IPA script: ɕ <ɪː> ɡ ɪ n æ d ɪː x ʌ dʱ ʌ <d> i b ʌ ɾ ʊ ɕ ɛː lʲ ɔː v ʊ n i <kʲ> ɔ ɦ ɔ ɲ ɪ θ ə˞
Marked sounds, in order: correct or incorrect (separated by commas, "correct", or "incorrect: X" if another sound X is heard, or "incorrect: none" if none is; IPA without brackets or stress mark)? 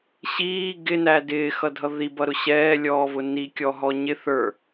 incorrect: iː, incorrect: ð, correct